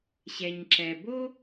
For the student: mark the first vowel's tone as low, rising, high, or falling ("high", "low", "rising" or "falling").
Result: low